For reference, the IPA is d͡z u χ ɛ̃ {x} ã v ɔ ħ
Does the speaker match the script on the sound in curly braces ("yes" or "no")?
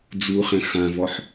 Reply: yes